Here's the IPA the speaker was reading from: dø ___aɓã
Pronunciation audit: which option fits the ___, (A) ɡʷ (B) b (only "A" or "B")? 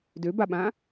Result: B